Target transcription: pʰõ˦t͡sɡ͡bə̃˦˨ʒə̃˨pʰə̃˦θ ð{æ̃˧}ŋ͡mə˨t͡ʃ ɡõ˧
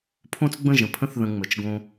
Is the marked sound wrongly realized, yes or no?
yes